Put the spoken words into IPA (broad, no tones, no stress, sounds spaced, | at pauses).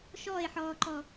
ʃ ɔː e̯ ħ ɔː ǃ ɔ